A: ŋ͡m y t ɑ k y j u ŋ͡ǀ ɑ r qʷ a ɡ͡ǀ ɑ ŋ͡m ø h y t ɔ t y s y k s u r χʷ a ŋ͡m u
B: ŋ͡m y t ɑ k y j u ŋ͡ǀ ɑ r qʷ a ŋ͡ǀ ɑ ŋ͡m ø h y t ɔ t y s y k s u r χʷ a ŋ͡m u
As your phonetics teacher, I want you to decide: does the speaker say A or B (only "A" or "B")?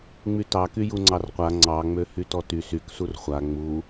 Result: B